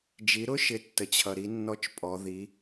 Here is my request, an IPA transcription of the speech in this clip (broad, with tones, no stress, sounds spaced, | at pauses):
d͡ʒ i˩˧ ɾ ʊ˥ ʃ ɪ˩˧ tː ə˩ t͡ɕʰ ʌ˩ ɾ i˩˧ nː ɔ˧˥ t͡ʃ pʼ ɔ˩˧ ð i˩˧